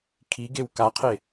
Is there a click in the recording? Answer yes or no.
no